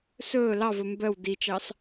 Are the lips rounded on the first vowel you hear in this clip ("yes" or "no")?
yes